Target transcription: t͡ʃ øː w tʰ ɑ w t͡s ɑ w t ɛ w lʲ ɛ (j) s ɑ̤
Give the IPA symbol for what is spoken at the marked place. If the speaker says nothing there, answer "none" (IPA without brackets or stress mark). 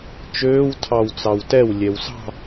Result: w